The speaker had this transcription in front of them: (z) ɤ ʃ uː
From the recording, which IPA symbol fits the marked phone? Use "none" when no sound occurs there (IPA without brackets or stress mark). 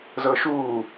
z